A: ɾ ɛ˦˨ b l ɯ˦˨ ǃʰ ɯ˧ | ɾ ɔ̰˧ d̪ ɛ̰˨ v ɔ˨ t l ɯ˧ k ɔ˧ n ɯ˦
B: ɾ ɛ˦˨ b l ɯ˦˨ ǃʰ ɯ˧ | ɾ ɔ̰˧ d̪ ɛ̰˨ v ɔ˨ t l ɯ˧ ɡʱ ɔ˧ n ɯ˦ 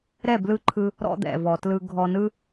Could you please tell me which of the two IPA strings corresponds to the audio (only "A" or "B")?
B